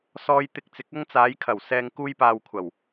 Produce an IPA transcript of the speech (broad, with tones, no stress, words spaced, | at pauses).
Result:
sɔː˧jt̪ɪ˧k̚t͡sɪ˨˥k̚ ɐ˧ŋt͡saː˨˧j kʰɐ˨˩wsɛː˨ŋ kuː˧jpaː˨wkʷʰɐ˨˩w